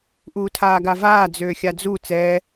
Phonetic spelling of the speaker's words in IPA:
ʔ uː tʰ aː ɡ a v aː d͡z øː xʲ a d͡z u t͡s ɛː

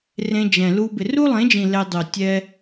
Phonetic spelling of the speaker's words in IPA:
r ẽ˧ d͡ʒ ɛ̃˨ l u˧ b ɪ˨ r u˦ lˠ ẽ˨˦ d͡ʒ ĩ˨ l ɛ˧ dˤ o˨ tʲ ɛ˦

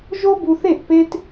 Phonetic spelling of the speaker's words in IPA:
ʒ o˦ b u˧ θ e˦˨ ʔ p e˦ t

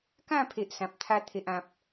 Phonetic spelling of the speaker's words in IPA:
k ã˥˧ pʰ e˨ ʔ s ã˨ p̚ t̪ʰ a˧ t̪ʰ e˨ ʔ ã˨ p̚

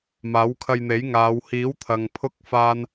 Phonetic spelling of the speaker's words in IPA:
m aː˨˥ w kʰ ɐ˧ j n̪ e˨˥ j ŋ aː˨˧ w h iː˨˥ w t̪ʰ ɐ˨ ŋ pʰ ʊ˥ k̚ f aː˥ n

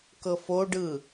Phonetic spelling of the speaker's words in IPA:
k ɤ f o ɖ ɯ

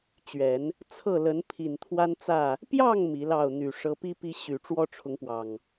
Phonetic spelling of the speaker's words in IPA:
t͡ɕ ɥ ɛ˨˦ n | t͡sʰ ɤ˥˨ l ə˨˦ n pʰ i˨˩ n t̪ʰ w a˦ n t͡s ä˥˨ | p j ɑ˥˨ ŋ m i˨˦ l ɑ˥˨ ʊ̯ n̪ y˨˩ ʂ ɤ˨˦ p i˦ p i˨˦ ɕ y˨˩ ʈ͡ʂ w ɔ˦ ʈ͡ʂʰ ʊ˨˦ ŋ p w ɑ˨˩ ŋ

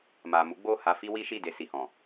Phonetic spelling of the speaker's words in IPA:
m a˨ m u˨˦ ɡ͡b o˦˨ h a˧ f i˦ w i˦ ʃ i˦˨ d e˧ s i˨ h ɔ̃˨

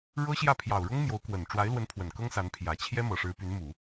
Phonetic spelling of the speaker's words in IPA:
ɻ ɤ˥ ɕ j ä˥˩ pʰ j ɑ˨˩ ʊ̯ ɻ ʊ˥ ŋ m j o˧˥ ʊ̯ k w ə˨˩ n ʈ͡ʂ w a˧˥ ɪ̯ l w ə˧˥ n pʰ w ə˨˩ n k ɤ˥ ŋ s a˧˥ n pʰ j ä˨˩ t͡ɕʰ j ɛ˥ m ɤ˨˩ ʂ ɻ̩˧˥ p y˧˥ n m u˨˩˦

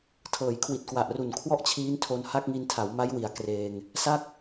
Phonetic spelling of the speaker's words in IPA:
tʰ ɤː˩˦ j kʰ w i˨˩ t̚ k w a˨˩ ʔ r u˨˩ n kʰ w ɔ˥˩ ʔ t͡ɕʰ iː˦˥ n tʰ o˧ n h a˥˩ k̚ ŋ i˧ n tʰ a˩˦ w m a˦˥ j w i˩˦ a̯ k r eː˧ ŋ | s a˥˩ k̚

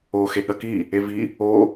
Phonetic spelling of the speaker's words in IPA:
o x e ɠ ɐ k i | e v i | o

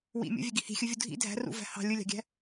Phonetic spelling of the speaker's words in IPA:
w ḭ mʲ o̰ vʲ ø ɡ i h i̤ xʲ ɯ vʲ u dʱ ḭ dʱ æ̤ r ṵ v æ̤ h ɑ̤ lʲ ɯ lʲ ɑ̤ ɡʲ æ̤

